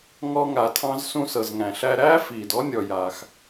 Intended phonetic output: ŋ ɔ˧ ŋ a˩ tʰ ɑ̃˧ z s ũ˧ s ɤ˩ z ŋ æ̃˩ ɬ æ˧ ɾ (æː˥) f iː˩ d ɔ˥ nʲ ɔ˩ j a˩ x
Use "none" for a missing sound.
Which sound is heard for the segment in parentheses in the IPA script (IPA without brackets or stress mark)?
æː˥